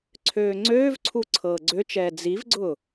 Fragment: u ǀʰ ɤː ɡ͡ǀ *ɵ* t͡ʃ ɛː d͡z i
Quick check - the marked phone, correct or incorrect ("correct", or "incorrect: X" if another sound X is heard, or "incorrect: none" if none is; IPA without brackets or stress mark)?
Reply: incorrect: ø